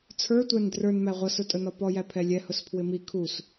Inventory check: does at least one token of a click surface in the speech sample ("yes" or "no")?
no